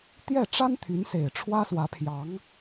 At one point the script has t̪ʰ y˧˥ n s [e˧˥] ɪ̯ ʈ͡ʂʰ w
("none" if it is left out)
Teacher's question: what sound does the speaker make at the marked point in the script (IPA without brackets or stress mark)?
e˨˩